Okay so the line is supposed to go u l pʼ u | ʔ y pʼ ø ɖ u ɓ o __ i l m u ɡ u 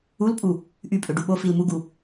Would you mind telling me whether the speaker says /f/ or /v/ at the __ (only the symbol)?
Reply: f